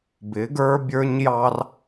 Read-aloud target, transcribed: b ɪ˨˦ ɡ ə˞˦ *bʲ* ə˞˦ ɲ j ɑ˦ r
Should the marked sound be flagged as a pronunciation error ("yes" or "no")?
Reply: no